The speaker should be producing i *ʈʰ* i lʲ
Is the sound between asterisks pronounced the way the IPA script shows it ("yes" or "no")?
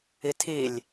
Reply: no